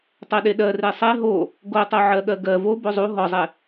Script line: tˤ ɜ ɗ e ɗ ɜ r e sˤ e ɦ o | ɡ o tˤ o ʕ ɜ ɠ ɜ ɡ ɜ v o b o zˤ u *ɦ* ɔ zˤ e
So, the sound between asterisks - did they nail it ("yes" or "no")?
yes